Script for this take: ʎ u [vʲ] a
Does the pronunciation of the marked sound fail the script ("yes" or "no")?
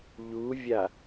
no